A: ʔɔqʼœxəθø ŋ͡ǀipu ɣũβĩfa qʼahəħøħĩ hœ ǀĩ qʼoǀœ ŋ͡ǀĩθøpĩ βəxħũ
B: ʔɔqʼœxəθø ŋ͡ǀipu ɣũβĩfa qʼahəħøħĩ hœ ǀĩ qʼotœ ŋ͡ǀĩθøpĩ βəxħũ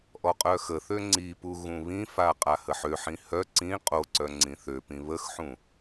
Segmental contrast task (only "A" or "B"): A